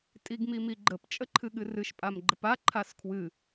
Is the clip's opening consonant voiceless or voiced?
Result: voiceless